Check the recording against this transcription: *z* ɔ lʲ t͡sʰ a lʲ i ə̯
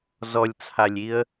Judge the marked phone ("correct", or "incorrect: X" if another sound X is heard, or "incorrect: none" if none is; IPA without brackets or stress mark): correct